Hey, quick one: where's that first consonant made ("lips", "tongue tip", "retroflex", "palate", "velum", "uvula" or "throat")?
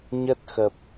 palate